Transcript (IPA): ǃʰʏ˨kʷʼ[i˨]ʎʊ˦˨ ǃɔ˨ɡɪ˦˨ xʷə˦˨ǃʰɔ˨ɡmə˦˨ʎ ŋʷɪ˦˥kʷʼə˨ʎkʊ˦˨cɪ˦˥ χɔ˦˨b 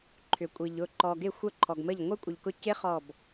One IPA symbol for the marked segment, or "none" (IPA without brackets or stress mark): i˨